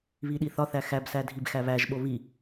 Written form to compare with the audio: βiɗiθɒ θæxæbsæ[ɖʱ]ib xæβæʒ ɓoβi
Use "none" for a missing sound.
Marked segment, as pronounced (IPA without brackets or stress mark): dʱ